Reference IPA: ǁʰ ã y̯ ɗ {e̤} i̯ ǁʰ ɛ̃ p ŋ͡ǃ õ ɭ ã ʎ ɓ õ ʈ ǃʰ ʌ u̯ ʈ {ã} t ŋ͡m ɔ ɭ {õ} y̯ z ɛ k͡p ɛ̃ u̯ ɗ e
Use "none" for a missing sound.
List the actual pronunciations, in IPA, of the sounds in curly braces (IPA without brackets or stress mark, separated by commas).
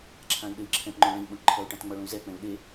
e, ã, õ